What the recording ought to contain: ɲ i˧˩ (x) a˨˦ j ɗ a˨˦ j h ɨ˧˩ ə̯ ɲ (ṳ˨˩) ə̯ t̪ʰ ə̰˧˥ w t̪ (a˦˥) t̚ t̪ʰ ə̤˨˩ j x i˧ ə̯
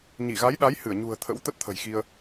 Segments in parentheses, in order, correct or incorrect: incorrect, correct, incorrect

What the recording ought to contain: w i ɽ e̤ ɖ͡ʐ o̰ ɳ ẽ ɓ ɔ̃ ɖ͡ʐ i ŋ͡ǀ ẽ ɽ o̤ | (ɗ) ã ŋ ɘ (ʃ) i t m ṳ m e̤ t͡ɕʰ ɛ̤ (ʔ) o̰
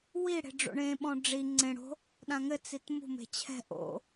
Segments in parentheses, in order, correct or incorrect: correct, incorrect, correct

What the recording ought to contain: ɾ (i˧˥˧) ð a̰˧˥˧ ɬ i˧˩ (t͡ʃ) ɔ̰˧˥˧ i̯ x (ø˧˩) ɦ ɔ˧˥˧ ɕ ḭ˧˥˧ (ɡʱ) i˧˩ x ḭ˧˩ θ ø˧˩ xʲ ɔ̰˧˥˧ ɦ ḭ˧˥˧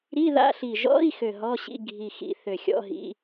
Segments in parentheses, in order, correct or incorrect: correct, incorrect, correct, correct

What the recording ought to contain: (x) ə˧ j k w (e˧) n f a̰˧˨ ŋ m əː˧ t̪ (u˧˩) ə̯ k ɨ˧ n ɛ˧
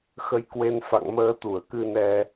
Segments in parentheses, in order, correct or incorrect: correct, correct, correct

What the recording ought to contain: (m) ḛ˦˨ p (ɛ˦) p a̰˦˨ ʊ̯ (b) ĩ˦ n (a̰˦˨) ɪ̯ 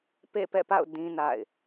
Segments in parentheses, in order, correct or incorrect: incorrect, incorrect, incorrect, correct

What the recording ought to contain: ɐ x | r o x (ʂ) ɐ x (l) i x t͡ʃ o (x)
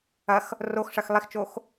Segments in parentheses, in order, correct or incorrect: correct, incorrect, correct

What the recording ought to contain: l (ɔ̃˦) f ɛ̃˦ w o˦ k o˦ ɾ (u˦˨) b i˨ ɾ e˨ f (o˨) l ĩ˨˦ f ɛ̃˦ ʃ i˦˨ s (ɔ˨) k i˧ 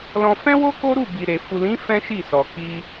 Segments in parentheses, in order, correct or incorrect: incorrect, correct, incorrect, correct

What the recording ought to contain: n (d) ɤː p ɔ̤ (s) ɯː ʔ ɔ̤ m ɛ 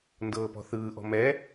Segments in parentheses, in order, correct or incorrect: correct, incorrect

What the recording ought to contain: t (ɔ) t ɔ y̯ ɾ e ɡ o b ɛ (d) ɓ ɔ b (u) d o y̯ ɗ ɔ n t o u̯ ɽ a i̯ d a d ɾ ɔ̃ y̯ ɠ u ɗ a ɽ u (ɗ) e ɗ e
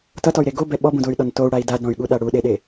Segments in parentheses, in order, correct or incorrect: incorrect, incorrect, incorrect, correct

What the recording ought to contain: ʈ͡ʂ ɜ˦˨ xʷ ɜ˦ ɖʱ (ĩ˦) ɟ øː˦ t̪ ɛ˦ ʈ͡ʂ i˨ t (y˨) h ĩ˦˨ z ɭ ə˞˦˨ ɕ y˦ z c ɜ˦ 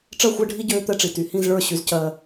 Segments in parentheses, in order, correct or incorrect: incorrect, correct

